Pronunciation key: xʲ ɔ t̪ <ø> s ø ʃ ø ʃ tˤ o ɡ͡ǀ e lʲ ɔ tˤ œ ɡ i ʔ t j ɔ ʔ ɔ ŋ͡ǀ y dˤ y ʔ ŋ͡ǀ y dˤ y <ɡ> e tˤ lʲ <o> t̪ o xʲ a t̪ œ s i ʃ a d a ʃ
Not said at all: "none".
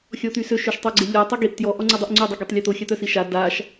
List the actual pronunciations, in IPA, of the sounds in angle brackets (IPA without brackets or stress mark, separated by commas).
y, ɡ, o